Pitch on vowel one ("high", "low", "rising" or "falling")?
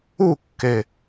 falling